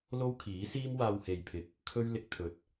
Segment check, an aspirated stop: present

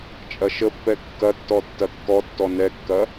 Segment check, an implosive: absent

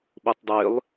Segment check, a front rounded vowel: present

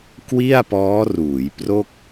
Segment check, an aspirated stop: absent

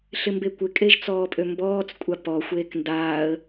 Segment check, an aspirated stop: absent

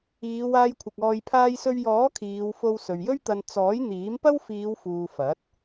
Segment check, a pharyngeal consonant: absent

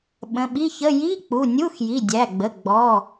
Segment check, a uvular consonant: absent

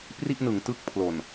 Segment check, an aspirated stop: present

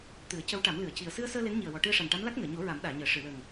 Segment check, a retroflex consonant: present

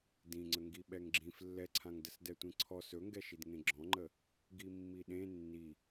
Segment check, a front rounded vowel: absent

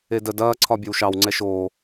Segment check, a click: present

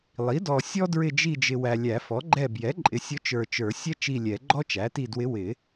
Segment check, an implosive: absent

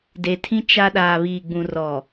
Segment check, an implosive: present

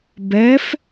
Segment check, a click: absent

